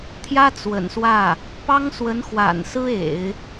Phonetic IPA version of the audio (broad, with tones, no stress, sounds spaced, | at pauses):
t̪ʰ j ä˥ t͡s w ə̰˨˩ n s w ä˥˩ | p ɑ˥ ŋ s w ə˧˥ n x w a̰˨˩ n s ɹ̩˥ ḛ˨˩˦ ɪ̯